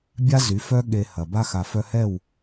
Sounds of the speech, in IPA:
bʲa˦zy˨˦fœ˦ ɠe˧hɐ˨ ba˧xa˨fœ˧hɛ˦˨w

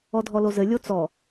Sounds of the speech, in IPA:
ɔdʱɔlozɘ lʲot͡sɔ

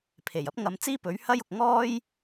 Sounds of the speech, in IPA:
pʰe˨˩j ɐ˥p̚ŋɐ˨˧mt͡siː˥ pɵ˨˥ɥhɐ˥jʊ˨k̚ ŋɔː˥j

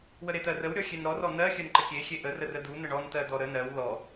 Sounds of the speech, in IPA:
wəɾet̪ɜrəw ɾʲɔxʲenɾɔ rɔn̪ɜ xʲɜnǃəkʲe xʲeʔə rərəd̪u n̪əɳɔn t̪ɜd̪ɔɾə nɜw lɔ

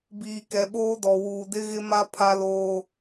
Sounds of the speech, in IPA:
biː˨kɛ˨ɓoː˦dɔ˨ wuː˨dɪ˦ɣɪ˦ma˦ pʰa˦loː˦

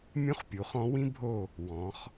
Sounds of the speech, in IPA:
mʲũ˥χpʲu˩˥χɔ̃˧˥ wĩ˥bʱo˦˨ | wɔ̃˩˧χ

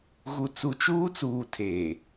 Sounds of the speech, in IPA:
ɣu˨t͡su˨t͡ʃuː˦t͡suː˨ tʰeː˨

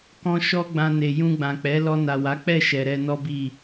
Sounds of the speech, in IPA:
kɔ̃˧ ʃɔ˦ɡ͡bã˧ ne˨jũ˧ɡ͡bã˨k͡pɛ˨˦ lɔ˧na˨wa˨˦k͡pɛ˦˨ ʃɛ˨ɾɛ˧nɔ˦bi˦˨

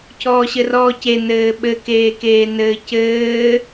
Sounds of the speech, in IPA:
cʰɔːɕɘrɔːce nɘːɓɘ keːkeːnɘːcɘː

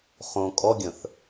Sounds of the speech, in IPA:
χõ kʼɔɡʲə̃θ

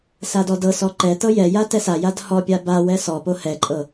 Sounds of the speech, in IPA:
sadɔdɤsɔ ǃɛtɤ jɛja tɛsajad hɔpʲa bawɛ sɔpo hɛǃʼɤ

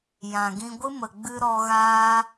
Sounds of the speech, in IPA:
jã˨ɡĩ˧ɡʷɨ˦ mə˨ɡ͡bɨ˧ ɾɔ˧ɣaː˦

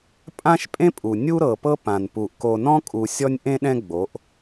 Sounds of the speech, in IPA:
pʼã˦ʃpʼẽ˦pʼu˨ nʲu˦ɾɤ˨pɤ˦ pã˨npu˨ʔ ko˨nɔ̃˦kʼu˨ sʲɔ˦nʲʔẽ˦ɗɛ̃˦ ɡ͡bo˨˦ʔ

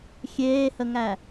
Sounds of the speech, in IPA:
xʲeːhəŋæ

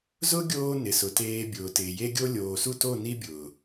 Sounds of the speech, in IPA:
zʊ˦ ɡʲoː˦nɪ˨sʊ˨teː˧ bʲʊː˨tɪː˨ je˦ɡʲo˦ lʲoː˨su˦˨to˦˨ ni˦bʲʊː˨

